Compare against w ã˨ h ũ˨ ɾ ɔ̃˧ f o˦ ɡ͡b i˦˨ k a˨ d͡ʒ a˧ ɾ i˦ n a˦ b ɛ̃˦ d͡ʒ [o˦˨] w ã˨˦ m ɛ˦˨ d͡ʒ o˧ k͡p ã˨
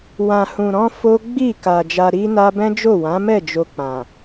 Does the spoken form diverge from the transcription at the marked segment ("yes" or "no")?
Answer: no